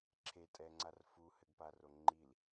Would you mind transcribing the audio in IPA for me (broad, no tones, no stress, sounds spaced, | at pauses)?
ǁʰ e tʼ ɛ ŋ͡ǀ a r f u h ɘ ɡ p a r o ŋ͡ǃ i l